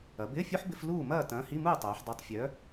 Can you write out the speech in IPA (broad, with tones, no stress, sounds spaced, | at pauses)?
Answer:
ɐ˩˧ b ɪː˧˥˧ fʲ u˦˥ ħ b ɪ˧˥˧ f l uː˥˨ m ɐː˥˨ t ɐ̃ː˨˥ h i˧˥˧ m uː˥˨ tˤ œː˩˧ ħ dˤ u˨˥ tˤ fʲ œ˨˥